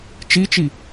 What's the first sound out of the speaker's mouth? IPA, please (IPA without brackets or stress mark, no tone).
t͡ʃ